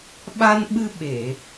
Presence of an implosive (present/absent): present